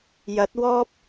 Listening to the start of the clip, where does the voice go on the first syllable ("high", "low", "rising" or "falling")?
rising